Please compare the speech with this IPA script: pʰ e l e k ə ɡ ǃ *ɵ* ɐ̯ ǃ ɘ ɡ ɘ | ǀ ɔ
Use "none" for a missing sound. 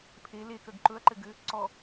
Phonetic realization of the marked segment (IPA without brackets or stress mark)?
ɵ